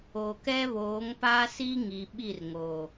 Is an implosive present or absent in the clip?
present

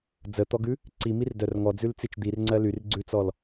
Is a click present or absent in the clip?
present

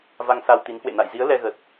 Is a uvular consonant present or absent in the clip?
absent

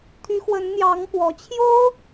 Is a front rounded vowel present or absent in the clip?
present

